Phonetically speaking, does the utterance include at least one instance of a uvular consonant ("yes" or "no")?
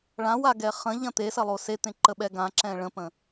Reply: yes